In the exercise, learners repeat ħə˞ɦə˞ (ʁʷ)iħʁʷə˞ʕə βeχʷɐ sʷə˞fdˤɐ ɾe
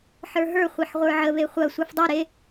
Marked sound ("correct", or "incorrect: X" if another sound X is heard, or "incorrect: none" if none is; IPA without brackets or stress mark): incorrect: χʷ